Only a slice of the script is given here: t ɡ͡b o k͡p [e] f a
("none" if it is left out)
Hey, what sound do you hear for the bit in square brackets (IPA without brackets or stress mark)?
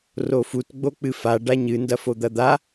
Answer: ɨ